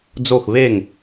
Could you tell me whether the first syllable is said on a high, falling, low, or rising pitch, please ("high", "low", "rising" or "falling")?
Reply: falling